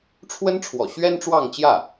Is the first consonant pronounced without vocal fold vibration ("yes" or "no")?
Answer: yes